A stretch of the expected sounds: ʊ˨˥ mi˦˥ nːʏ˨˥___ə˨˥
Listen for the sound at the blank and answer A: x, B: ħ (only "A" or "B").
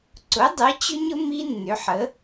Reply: B